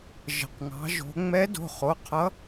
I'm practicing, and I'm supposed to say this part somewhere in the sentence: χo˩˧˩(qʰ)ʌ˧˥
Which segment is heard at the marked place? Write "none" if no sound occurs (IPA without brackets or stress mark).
qʰ